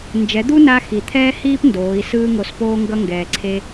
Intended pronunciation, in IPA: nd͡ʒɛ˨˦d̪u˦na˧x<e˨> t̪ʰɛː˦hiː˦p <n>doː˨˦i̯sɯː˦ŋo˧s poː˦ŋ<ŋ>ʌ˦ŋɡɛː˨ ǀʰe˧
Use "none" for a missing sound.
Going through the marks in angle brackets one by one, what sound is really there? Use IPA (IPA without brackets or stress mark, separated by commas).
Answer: i˨, n, ɡ